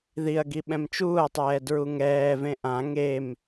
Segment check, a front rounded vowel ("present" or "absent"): absent